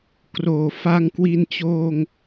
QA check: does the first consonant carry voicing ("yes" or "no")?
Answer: no